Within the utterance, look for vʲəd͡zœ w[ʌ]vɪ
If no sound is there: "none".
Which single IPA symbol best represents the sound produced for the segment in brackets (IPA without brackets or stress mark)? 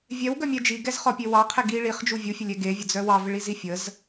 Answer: ɑ